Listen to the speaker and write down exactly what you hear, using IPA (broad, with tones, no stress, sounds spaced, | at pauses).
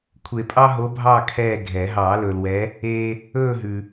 kʷʰ e˨˩˦ pʼ ɑ˦ ɦ o˨˦ bʱ ɑː˦˨ kʰ ɛː˦˨ ɡʱ ɛ˨˩˦ ɦ ɑː˨˩˦ l ɵː˨ l w ɛː˨˦ | eː˦ | ɵː˦˨ ɦ ʉ˨